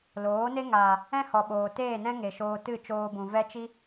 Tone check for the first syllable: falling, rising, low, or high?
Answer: rising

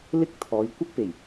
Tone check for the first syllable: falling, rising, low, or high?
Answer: high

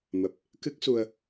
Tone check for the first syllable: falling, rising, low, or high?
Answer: low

